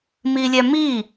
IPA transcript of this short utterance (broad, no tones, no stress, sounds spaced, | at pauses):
m i lʲ ɛ m i